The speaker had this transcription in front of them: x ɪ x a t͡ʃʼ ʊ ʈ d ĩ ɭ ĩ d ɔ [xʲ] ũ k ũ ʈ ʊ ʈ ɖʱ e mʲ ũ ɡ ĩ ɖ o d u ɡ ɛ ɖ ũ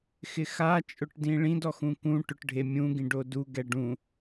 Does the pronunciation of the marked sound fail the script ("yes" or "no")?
yes